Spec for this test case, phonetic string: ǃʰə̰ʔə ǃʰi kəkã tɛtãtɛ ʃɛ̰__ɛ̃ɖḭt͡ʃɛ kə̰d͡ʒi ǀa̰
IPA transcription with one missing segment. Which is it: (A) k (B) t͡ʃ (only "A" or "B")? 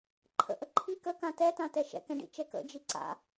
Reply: A